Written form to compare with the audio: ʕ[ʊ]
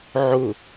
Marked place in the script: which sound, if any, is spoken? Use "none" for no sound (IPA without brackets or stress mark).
ʊ